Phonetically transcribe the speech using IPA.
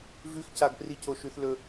vʉxcaɡ pricoʃʉθ lɵ

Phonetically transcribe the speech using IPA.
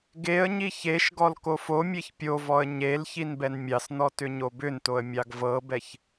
ɡeə̯ɲi çeʃɡɔl kofomʲeç pʲovɔə̯ ɲel çinbɛnmʲɑsnɔ tʏɲobʏntoə̯ mʲɑɡvɤbɛç

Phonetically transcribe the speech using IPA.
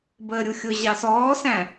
bəːɾʲuxʲʊ ʑɑsɔːsæ̃

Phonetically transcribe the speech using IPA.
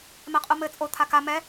mɛqʼumɘ t͡sʼo t̪ʰaka mɛ

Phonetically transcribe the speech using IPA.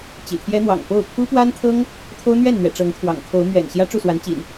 t͡ɕḭ˨˩t̪ʰjɛ˦n̪wɑ̰˨˩ŋ po˥˨ʊ̯ pʰu˦pwa˦nt̪ʰɤ˦ŋ | t̪ʰo˦ʊ̯n̪ɥɛ˥˨nn̪ɥɛ̰˨˩ ʈ͡ʂɤ˨˦ŋt̪ʰwɑ̰˨˩ŋkʰo˨˦ʊ̯ mɥɛ̰˨˩n ɕjä˦ʈ͡ʂu˥˨swa˨˦nt͡ɕḭ˨˩n

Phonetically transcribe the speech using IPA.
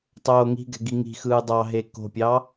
tˤoːŋi̤ɡɛ̤ ɡiŋi̤xɯː dˤɑ ɦeko̤pʲɑ

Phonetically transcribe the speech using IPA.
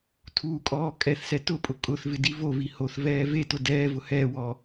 tʰuːkʼɔː kʼɛθsɛ tʊpʼʊ kʼʊθvɪ divovi hoθvɛː vetʊ dɛːvʊ hɛːwɔː

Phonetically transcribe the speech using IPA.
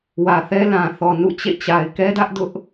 wä˨θɛ˦ lã˨θɔ˨ nṵ˦˨ t͡ɕḛ˦˨ t͡ɕa˨ɪ̯kɛ˦dä˦ʔdʊ˦ʔ

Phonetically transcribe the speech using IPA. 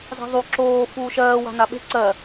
za̤ðˤu ǁoː fuːʃɜː wa̤naɓe̤ ǀɜ

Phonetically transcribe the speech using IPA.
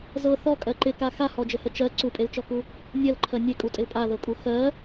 zɤ θɔkʼɜ ǃɪka xahɔd͡ʒəhə t͡ʃɜ ǀupʼelt͡ʃɔku | nʲɜlǃʰɜ nʲekʼutʼɪl pʼaðɤkʼu xɜ

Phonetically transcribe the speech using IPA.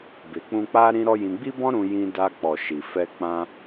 be˨k͡pũ˧k͡pa˦ ɾĩ˦ɾɔ˦jĩ˧ ɡ͡bi˦bɔ̃˦ ɾũ˧jĩ˧da˧ k͡pɔ˨ ʃi˨fɛ˧ k͡pã˧

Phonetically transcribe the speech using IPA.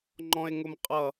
ŋ͡ǃɔ̃e̯ŋʊmqʼʌ

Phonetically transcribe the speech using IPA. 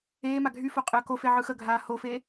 eːma ɡʱyfo qʼəːkofe ʕɯxəɡʱaː hofe

